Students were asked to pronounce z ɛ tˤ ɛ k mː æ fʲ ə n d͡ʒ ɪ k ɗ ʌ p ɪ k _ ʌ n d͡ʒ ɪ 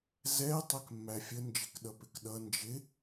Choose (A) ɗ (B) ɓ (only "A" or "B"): A